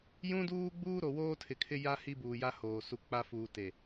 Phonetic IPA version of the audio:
j ũ˦ d uː˦ ɡ͡b uː˦ ɾ o˨ w oː˦ tʰ ɪ˨ kʰ ɪ˦ j a˦ h i˦ b uː˨ j a˦ h oː˨ s u˨ k͡p a˦ f uː˨ t e˨

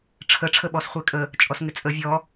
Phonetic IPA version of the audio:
ʈ͡ʂʰ ə ʈ͡ʂʰ ə ɓ ɔ s χʷ e kʼ ə | t͡ʃʼ ɔ s ŋ ɪ t͡sʼ ə vʲ ɔ

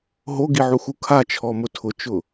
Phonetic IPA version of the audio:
ɦ o ɡ i ʕ u x u kʰ a t͡ʃʰ ɔ m ʊ tʰ ʊ t͡ʃ ʊ

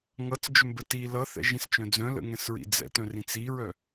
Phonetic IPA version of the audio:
ŋ ʌ t͡s d͡ʒ ʏ m b ə t i l ʌ θ ɛ̰ ʒ ĩ s t͡ʃ œ̃ d͡z œ̃ l ə̰ ŋ ɛ̃ s ɹ ḭ d͡z ɛ̰ t œ̃ r ĩ t͡s i ɹ œ

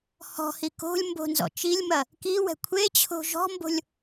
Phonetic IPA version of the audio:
h ɔ̤ h i k o̤ lʲ m b o̤ n z ɔ̰ t͡ʃ i lʲ m ɐ | k i w ɛ̤ kʷʰ e t͡ɕʰ o̤ ʒ ɔ̤ m b o̤ lʲ

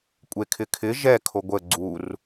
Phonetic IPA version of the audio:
kʷʼ e kʰ ɪ kʰ ɪ ʒ ɛ kʰ o ɡʷ ə ɡ͡ǀ u r

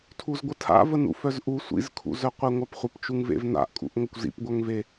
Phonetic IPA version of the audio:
tʰ u z ɡʷ ə tʰ a̰ v ə n ṵ f œ z ʔ u sʷ ḭ z kʰ ṵ z œ qʷ e ŋʷ a p χʷ ə p t͡ʃ u ŋ v ḛ v n a̰ ʔ kʼ ṵ ʔ ŋʷ ə kʷ z ḭ p ɡʷ œ ŋ v e

